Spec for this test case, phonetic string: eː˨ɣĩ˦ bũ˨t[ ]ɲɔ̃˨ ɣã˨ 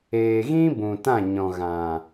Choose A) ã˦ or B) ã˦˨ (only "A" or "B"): B